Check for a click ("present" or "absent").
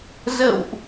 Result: absent